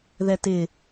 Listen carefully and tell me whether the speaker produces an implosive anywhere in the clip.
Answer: no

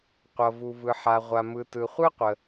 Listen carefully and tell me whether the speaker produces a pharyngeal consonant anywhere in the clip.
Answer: yes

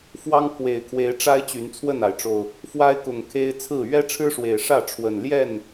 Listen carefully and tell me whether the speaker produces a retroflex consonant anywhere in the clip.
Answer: yes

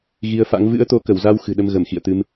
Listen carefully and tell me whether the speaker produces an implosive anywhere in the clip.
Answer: yes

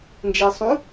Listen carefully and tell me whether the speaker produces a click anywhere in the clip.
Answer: no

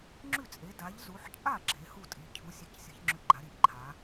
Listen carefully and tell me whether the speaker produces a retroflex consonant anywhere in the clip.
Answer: no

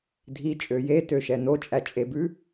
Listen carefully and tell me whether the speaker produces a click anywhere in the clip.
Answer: no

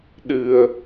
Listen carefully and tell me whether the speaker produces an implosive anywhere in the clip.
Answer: yes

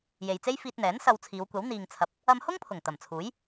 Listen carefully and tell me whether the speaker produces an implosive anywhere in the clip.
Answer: no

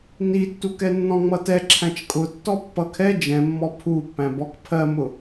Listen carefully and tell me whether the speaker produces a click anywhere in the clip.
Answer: yes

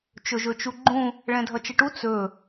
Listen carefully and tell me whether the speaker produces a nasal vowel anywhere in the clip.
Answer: yes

